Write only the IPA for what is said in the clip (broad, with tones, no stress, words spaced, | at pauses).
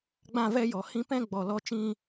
ɡ͡bã˦˨vɛ˦jɔ˨ hĩ˦ pɛ̃˦ɡ͡bɔ˨ lɔ˦t͡ʃĩ˦